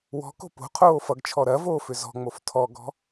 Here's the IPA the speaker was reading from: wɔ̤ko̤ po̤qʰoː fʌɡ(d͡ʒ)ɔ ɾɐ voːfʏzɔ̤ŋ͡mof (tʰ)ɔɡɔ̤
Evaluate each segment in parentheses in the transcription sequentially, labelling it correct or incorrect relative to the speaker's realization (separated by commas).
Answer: incorrect, correct